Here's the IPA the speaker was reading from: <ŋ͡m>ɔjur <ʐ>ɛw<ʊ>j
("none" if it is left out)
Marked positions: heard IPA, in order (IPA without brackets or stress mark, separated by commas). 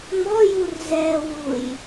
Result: ŋ͡m, z, u